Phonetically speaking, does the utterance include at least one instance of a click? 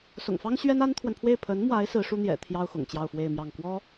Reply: no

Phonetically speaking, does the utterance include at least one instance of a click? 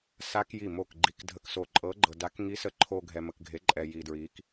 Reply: yes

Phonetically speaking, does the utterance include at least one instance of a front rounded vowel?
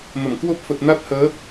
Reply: no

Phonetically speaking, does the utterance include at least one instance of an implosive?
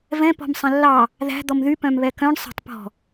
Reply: no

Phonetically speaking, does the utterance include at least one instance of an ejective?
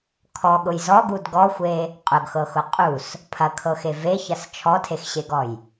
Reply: yes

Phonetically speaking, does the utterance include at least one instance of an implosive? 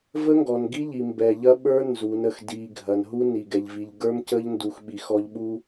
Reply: yes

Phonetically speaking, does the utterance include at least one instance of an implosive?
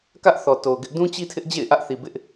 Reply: no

